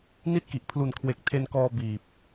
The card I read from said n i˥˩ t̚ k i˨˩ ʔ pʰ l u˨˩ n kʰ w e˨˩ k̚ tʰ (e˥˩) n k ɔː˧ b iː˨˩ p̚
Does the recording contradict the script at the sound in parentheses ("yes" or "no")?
yes